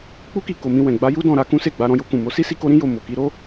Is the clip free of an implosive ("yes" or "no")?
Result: yes